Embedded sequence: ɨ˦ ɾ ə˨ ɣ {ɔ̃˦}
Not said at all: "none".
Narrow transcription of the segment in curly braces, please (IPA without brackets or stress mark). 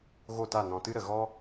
ɔ˦